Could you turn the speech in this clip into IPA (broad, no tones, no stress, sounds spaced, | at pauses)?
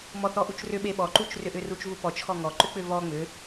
m ɔ θ ɔ ʔ u t͡ʃ r ʏ ɓ e ɓ ɔ ǃ u t͡ʃ r ʏ ʔ ʏ r u t͡ʃ v u p ɔ t͡ʃ x ɔ ŋ ɔ ǃ ʏ k͡p ʏ v ɔ ŋ͡m ʏ